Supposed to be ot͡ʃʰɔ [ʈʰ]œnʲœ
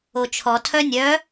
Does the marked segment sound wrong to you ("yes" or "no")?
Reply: yes